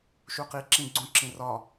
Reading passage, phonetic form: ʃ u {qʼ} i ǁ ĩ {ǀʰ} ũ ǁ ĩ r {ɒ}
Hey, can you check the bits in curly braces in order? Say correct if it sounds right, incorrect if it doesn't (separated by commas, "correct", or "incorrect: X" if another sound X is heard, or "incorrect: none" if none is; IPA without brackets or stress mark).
incorrect: q, incorrect: ɡ͡ǀ, correct